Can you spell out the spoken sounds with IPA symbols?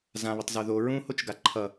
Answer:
z ã β ə tˤ z o ð o ɹ ũ h o t͡ʃ ɡ a ǃʰ ʌ

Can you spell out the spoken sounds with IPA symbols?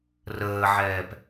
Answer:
r əː ʕ ɛː p

